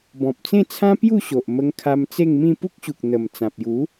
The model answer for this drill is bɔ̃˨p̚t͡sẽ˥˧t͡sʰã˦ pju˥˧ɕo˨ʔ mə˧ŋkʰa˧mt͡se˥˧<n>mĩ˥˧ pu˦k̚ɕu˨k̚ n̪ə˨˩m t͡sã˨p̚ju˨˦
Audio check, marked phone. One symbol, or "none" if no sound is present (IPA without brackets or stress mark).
ŋ